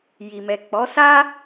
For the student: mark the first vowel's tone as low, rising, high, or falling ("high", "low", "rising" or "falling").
low